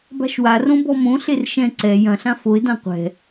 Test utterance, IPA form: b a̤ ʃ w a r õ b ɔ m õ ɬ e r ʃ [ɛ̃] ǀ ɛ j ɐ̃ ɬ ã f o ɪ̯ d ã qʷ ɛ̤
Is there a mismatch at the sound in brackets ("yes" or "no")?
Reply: no